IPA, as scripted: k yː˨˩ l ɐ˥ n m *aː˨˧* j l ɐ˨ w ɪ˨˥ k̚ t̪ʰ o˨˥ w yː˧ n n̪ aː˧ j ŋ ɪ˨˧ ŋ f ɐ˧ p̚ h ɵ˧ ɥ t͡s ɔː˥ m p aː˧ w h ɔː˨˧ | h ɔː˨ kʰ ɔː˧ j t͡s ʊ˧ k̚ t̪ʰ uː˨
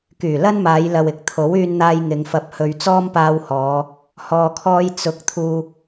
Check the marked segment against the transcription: correct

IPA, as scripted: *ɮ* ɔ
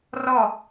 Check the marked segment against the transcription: incorrect: r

